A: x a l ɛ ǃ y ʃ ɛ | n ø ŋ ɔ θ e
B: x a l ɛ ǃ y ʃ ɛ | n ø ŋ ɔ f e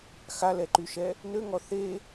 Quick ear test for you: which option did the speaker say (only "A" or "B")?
A